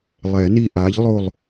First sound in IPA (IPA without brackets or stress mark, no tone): lˠ